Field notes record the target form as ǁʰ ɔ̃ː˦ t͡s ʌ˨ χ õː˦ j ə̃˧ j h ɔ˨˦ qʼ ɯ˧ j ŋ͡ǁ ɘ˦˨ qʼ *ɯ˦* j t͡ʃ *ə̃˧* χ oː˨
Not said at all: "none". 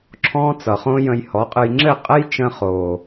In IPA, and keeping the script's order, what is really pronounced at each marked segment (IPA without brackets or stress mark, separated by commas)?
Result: ə˦, ə̃˧